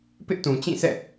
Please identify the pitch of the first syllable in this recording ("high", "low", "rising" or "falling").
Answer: high